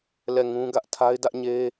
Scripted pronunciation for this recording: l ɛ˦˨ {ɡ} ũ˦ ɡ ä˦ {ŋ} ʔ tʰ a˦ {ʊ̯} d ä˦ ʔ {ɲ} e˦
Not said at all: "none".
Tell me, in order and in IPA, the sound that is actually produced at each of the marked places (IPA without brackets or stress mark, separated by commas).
ŋ, none, ɪ̯, ɲ